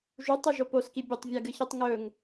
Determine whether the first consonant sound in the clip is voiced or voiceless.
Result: voiced